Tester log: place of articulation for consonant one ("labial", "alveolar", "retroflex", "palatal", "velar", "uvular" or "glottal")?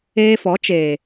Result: labial